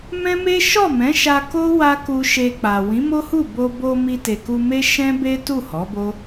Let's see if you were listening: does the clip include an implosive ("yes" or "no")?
no